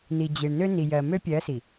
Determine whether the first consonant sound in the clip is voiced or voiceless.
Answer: voiced